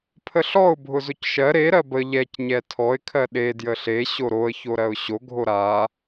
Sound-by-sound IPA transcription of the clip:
pʰəɬɔʊ̯ bʱʊzʊcʃɜ ɾe ɾɜbə ʎɛc ɲɛtʰɔɪ̯ kʰɜɗe djəɬe ɕoɾoə̯ çoɾɜʊ̯ɕo ɡʱoɾa

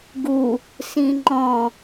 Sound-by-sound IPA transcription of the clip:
ɡu | sĩŋ͡ǃɔ̃

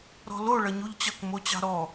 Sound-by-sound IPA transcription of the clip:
ɾɔ̤lo ɭʌɲuʎt͡ɕʌk mot͡ɕɑ̤ɾɔ

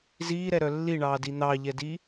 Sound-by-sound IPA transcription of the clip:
ziːɾɛɾœ lːiɳɑːdi n̪ɑʎɛdi

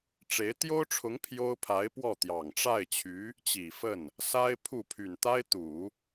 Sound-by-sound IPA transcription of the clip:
ʈ͡ʂe˧˥ɪ̯ t̪jo˥ʊ̯ʈ͡ʂʰʊ˧˥ŋ pʰjo˥ʊ̯ pʰa˧˥ɪ̯pwɔ˥˩t̪jɑ˨˩ŋ ʈ͡ʂa˥˩ɪ̯t͡ɕʰy˧˥ | t͡ɕi˨˩fə˥˩n | sa˥ɪ̯pʰu˥˩ pʰy˨˩nt̪a˥ɪ̯t̪u˨˩˦

